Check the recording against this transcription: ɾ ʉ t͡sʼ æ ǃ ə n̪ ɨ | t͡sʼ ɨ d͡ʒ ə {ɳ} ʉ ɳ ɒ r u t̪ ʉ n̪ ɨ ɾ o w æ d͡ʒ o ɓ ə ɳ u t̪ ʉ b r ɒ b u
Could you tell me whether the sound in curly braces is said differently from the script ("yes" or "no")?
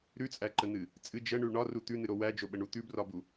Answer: no